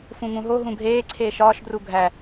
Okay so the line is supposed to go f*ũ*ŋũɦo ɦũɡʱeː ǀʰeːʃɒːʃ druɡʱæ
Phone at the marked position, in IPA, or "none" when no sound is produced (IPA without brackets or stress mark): ũ